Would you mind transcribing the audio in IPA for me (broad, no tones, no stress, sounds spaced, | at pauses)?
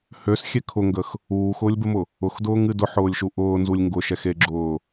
h ø s xʲ ɛ kʰ ʊ ŋ ɡ ə x | uː x ʊː lʲ b ə m ʊ | ʊ x d ʊː ŋ ɨ d ʊ ħ ʊː lʲ ʃ u ʔ ʊː n z u lʲ ŋ ɡ ʊ ʃ ɛ x e ɡ͡ǁ ʊː